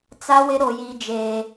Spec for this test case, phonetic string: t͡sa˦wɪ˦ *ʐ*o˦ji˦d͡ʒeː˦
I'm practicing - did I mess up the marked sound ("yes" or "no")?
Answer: yes